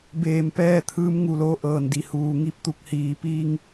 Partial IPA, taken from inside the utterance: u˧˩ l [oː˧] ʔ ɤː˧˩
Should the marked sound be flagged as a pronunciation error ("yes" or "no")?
no